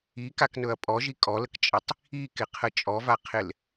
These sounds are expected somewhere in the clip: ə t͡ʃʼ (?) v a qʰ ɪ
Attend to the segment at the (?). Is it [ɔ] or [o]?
ɔ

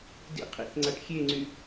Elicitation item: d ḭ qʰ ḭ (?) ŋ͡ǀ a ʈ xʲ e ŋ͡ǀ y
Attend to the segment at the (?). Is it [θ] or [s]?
θ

